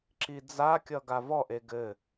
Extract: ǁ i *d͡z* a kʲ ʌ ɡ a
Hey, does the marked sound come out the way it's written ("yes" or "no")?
yes